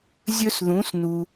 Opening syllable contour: high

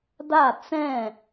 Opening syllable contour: falling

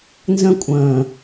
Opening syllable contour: high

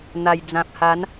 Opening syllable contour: low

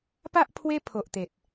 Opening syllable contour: high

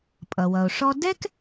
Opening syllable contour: low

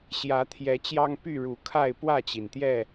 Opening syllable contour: rising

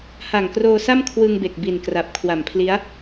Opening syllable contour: low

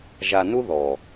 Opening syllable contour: low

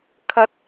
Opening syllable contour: high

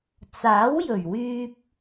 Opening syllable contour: rising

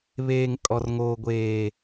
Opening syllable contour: high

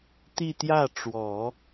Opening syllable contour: falling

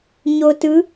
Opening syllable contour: low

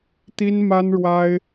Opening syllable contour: high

